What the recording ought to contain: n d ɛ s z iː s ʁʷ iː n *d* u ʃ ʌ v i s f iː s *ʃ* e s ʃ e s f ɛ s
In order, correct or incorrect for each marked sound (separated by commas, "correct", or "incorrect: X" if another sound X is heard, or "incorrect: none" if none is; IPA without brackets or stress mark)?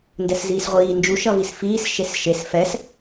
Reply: incorrect: d͡ʒ, correct